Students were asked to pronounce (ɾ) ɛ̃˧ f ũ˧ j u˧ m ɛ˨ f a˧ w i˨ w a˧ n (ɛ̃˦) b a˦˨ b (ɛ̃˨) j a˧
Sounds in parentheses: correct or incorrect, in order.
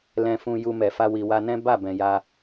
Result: incorrect, correct, correct

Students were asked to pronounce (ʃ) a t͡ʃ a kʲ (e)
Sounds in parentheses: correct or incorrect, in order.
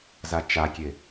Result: incorrect, correct

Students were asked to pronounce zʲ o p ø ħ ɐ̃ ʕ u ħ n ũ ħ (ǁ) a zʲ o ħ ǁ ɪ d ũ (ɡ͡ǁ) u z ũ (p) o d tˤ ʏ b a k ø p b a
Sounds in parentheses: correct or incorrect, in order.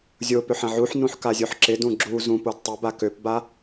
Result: incorrect, correct, correct

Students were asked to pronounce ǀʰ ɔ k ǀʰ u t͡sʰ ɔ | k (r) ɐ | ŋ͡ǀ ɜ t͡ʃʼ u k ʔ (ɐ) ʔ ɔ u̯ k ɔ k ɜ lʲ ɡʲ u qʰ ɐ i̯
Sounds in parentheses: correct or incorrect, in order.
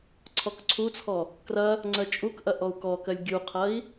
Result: correct, correct

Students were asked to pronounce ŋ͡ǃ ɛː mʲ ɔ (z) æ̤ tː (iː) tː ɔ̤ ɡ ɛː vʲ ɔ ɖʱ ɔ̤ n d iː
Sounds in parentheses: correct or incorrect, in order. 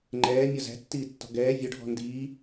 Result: correct, correct

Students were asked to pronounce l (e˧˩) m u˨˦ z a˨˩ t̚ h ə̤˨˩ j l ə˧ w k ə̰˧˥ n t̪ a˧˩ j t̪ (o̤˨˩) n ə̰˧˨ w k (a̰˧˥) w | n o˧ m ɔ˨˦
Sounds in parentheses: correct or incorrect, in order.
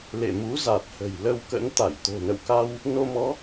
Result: incorrect, correct, incorrect

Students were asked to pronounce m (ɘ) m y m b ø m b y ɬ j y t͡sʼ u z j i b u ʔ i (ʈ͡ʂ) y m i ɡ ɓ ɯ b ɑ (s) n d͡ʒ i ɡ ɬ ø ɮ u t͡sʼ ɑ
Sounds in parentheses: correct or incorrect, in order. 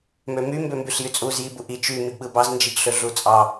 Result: incorrect, incorrect, incorrect

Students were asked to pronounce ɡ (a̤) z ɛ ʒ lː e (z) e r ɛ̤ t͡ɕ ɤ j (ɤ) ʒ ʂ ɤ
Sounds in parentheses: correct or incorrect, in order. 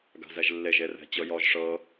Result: correct, incorrect, incorrect

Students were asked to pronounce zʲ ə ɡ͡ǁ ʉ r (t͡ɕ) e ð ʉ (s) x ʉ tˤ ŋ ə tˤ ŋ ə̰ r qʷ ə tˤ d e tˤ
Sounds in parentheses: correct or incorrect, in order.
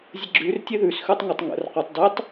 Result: incorrect, correct

